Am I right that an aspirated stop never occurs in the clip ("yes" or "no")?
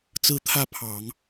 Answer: no